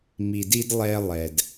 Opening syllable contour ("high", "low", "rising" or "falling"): low